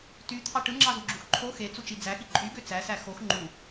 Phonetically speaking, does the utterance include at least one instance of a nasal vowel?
no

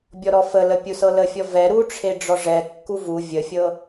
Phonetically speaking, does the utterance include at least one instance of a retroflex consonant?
yes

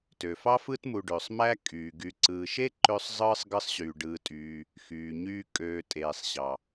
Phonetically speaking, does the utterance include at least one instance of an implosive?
no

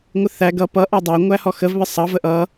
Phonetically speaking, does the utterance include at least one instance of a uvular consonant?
no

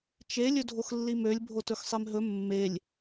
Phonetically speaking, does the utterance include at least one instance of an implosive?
no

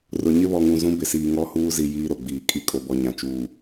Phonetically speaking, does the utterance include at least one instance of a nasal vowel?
yes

